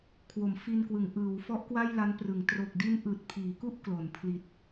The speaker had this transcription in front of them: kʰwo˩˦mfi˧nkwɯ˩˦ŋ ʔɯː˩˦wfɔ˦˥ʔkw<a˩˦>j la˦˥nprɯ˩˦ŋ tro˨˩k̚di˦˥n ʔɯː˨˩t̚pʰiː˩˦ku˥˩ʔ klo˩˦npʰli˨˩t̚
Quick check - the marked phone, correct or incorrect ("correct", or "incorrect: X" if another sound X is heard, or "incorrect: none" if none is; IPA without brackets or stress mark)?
incorrect: a˥˩